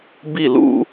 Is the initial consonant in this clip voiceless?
no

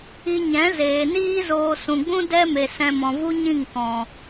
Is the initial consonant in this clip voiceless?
no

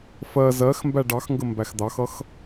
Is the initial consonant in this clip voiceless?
yes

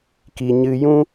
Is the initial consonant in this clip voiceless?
yes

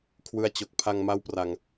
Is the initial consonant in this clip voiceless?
yes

